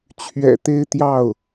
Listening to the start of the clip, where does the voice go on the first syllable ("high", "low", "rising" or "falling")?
low